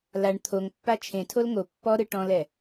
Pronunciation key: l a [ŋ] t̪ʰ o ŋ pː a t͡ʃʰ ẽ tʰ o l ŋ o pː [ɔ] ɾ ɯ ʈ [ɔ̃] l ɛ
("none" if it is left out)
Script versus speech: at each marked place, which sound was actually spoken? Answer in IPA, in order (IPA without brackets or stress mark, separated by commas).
ɳ, ɔ, ɔ̃